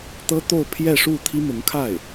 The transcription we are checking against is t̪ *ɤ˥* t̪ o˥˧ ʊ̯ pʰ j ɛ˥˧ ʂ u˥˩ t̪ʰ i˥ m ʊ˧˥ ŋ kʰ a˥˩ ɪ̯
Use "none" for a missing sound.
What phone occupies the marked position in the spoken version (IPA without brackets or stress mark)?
ɤ˥